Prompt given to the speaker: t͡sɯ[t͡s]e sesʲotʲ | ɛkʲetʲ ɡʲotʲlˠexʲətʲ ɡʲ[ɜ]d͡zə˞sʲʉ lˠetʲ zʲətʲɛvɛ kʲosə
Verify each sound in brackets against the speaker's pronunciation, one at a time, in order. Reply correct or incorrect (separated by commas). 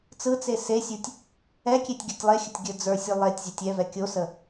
correct, incorrect